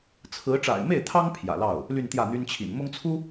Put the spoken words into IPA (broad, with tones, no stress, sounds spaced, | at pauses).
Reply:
t͡sʰ ɹ̩˧˥ ʈ͡ʂ a̰˨˩ ɪ̯ m e˥˩ ɪ̯ t̪ʰ ɑ˥ ŋ pʰ j ä̰˨˩ l ɑ˥˩ ʊ̯ | l y˥˧ n t̪ j ä˥˩ n̪ y˥ n t͡ɕʰ ḭ˨˩ n m ʊ˥ ŋ t͡sʰ u˥